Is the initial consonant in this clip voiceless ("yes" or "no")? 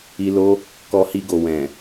no